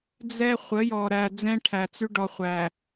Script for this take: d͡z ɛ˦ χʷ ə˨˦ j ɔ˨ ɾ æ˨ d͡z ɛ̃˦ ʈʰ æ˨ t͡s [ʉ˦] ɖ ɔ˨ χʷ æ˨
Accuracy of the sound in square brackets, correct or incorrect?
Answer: correct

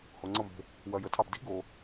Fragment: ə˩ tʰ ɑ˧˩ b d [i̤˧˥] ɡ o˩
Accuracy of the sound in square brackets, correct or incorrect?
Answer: correct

